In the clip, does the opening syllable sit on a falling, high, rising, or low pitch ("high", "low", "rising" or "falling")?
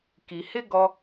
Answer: low